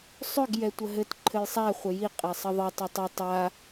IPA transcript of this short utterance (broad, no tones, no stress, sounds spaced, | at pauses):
sˤ ʏ ɡ j ɛ tʷ ə ɦ ɘ t ǃʰ ɘ j sˤ æ χʷ ɘ j i qʼ e sˤ ə ðˤ ɘ tˤ ɘ tˤ ʏ tˤ a